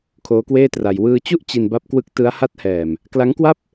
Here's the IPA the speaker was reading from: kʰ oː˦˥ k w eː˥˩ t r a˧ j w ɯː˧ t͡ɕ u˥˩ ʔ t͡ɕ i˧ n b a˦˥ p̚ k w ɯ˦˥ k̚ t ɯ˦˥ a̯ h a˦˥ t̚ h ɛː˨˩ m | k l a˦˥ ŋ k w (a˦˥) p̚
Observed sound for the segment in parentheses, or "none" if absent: a˥˩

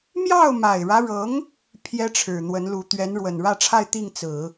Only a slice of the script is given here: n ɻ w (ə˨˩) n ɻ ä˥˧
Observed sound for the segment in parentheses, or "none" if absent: ə˨˩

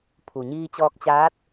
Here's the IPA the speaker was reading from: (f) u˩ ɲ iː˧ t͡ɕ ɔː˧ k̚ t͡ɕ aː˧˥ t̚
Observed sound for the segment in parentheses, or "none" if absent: pʰ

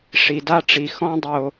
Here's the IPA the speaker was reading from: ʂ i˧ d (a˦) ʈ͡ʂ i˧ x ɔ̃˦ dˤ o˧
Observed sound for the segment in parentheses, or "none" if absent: a˦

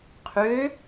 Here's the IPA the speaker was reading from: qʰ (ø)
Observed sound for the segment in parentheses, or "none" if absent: ø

